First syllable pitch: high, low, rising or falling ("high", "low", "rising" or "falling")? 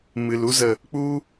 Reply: low